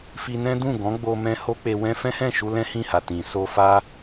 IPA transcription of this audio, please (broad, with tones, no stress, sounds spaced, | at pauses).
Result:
f i˧ n ɛ̃˦ d ũ˦˨ ɡ ɔ̃˨˦ ɡ͡b o˧ m ɛ̃˧ h o˦ k͡p e˧ w ɛ̃˦ f ɛ̃˦ h ɛ̃˦˨ ʃ u˧ l ɛ̃˦ h ĩ˦˨ h a˨ t ĩ˨ s o˧ f a˦